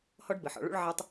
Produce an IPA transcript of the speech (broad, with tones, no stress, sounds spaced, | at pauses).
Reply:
h ɔ˦ ɖ b ɘ˨ ħ ɔ̰˨ ɭ ṵ˦ ɭ ʕ a˦ tˤ